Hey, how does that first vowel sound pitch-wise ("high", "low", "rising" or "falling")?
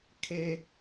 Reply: low